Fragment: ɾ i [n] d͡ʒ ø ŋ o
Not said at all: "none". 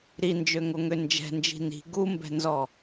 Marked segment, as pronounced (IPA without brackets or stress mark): n